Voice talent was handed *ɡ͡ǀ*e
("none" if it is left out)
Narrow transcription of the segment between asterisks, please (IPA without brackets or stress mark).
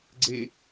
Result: ɡ͡ǀ